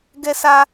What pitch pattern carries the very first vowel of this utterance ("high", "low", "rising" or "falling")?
high